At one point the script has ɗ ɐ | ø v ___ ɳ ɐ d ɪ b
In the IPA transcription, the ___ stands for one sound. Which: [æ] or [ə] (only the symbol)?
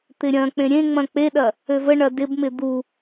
ə